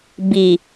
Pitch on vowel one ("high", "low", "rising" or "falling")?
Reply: low